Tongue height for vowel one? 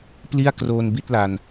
high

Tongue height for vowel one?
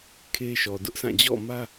mid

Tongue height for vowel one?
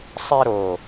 mid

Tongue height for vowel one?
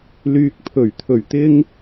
high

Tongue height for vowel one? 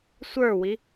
mid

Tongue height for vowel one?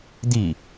high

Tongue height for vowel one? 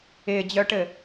high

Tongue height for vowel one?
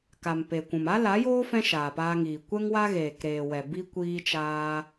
low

